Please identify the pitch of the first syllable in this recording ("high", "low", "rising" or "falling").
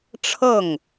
falling